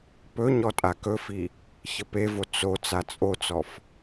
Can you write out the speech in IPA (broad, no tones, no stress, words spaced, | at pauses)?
pɵ ɲɔtʼakɵfi | çəpevo t͡so t͡sat͡sʼot͡sɔf